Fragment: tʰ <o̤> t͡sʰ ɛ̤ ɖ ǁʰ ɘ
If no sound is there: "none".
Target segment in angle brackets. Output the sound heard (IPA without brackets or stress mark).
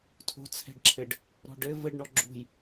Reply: o̤